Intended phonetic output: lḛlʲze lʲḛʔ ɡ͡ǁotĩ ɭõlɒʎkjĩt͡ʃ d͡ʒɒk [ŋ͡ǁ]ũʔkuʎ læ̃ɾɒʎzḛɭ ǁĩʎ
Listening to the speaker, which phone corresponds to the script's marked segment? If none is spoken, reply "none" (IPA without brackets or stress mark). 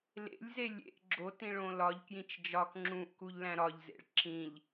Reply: ŋ͡ǁ